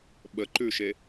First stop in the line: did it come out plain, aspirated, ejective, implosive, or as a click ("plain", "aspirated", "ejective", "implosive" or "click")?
implosive